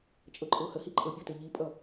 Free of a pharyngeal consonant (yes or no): yes